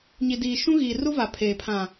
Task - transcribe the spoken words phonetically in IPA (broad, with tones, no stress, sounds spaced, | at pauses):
ɲ i˨ d iː˨ ʃ ũ˦ ɣ iː˨ r u˦ v a˨ pʰ eː˨ pʰ ã˨